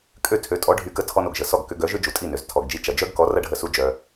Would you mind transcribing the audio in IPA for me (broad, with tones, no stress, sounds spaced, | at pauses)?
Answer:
kʼ ø˥˩ tʰ ø˩˥ tʼ ɔ˩˥ ɖʱ y˩˥ k ə˩˥ tʰ ɔ˧ n o˩ ɡ ʒ ə˩ s ɔ˥˩ ɡ k ʏ˧ ɡ œ˩˥ ʒ ʏ˥ d͡ʒ u˩ tʼ i˥˩ n ø˩ z tʰ ɔ˩ ɡ d͡ʒ i˧ t͡ʃ ɐ˩ d͡ʒ œ˥ ɡ k ɔ˩˥ r ɐ˥ ɖʱ ə˧ s u˧ d͡ʒ œ˩